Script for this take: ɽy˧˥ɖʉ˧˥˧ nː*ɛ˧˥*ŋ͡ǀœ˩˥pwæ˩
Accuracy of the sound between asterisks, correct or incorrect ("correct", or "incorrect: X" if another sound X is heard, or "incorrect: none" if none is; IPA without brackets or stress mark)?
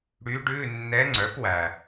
correct